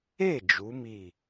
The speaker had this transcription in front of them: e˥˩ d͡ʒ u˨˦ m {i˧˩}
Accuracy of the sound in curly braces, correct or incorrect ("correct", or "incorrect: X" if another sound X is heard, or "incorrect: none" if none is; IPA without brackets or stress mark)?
correct